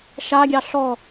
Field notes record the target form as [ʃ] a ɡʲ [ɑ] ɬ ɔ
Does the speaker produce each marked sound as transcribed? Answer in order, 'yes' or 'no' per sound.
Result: yes, yes

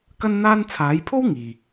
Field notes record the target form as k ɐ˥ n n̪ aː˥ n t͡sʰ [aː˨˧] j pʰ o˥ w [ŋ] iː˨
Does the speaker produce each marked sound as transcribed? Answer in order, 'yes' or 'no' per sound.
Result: yes, yes

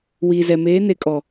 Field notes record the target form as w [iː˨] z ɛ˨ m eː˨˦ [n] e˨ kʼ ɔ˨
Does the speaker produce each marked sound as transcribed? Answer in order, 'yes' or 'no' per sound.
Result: yes, yes

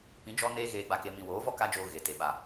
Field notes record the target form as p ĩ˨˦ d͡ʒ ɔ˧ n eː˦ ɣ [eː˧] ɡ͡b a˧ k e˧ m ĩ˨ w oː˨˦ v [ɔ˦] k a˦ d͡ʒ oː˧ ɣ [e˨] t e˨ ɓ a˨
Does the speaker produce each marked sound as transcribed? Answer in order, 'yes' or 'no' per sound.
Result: yes, yes, yes

